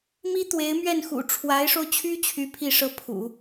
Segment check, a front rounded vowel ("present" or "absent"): present